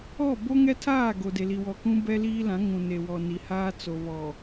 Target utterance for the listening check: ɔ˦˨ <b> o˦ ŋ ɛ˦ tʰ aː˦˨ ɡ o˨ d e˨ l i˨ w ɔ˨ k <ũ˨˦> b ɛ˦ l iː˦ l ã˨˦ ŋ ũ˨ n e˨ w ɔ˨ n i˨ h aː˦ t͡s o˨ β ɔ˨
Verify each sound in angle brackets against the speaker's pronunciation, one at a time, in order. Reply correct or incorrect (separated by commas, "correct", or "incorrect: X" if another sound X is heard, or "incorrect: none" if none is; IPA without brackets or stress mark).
correct, incorrect: ũ˦